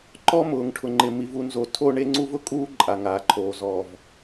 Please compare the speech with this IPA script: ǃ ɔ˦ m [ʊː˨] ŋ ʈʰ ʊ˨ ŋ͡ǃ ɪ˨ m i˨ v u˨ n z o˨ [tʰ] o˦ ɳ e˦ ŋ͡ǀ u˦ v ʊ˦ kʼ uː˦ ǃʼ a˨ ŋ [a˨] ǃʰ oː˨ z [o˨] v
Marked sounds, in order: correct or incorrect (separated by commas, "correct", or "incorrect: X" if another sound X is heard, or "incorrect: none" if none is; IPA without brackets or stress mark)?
correct, correct, incorrect: aː˨, incorrect: ɔ˨